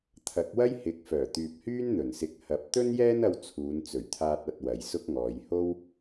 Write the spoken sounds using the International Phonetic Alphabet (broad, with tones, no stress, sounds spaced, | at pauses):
t̪ʰ ɐ˨˥ k̚ w ɐ˥ j h ɪ˨˥ k̚ f œː˨˩ t̪ yː˨ p̚ h yː˥ n n̪ ɵ˨˩ n s ɪ˧ k̚ h ɐ˨ p̚ t̪ ɵ˥ n j ɛː˥ n ɐ˧ w t͡sʰ uː˨˧ n t͡s ɵ˨˩ ɥ t̪ʰ aː˧ t̚ ɐ˨ t̚ w ɐ˨˧ j s ʊ˥ k̚ ŋ ɔː˨˧ j h o˥ w